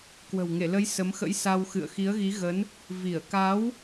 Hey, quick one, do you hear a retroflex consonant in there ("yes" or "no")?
no